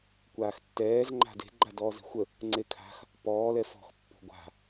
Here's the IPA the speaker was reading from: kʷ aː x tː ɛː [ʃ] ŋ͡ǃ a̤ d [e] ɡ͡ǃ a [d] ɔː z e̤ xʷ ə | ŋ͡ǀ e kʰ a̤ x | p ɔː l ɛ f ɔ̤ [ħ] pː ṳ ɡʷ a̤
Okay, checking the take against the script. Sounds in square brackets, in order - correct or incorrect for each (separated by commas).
incorrect, incorrect, correct, incorrect